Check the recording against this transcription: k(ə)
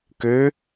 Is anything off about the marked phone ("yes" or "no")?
yes